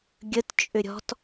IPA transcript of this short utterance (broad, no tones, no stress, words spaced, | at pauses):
ɡʲət t͡ʃʼʏɾʲɔ̤t